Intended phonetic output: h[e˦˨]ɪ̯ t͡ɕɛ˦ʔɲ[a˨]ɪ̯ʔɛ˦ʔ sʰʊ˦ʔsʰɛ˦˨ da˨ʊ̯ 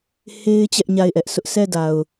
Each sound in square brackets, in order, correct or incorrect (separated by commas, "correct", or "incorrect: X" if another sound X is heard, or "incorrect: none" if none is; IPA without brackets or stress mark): incorrect: e˦, incorrect: a˦˨